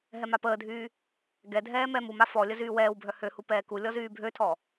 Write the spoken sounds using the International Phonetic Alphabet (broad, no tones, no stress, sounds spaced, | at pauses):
ɦ ɛ m a p əː dʱ yː | ɡ ɛ dʱ ɛː m ɛ m u m a f ɔ lʲ ə z yː w ɛː w bʱ œ h ø h u p ɛː k u lʲ ɔ z yː bʱ ø tʰ ɔ